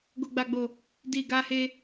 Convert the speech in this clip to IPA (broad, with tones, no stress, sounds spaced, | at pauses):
ɡ o˨ ɡ͡b a˨ ɡ͡b o˨ | d i˨ ɡ a˧ h e˧